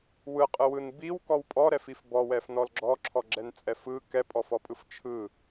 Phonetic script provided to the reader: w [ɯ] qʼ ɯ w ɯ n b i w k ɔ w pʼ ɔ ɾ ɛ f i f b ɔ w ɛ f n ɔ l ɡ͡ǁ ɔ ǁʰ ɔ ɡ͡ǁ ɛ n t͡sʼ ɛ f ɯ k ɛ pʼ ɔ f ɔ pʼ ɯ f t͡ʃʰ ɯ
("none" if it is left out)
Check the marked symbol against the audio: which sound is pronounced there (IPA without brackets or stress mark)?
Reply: ɯ